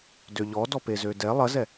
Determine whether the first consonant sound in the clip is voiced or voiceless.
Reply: voiced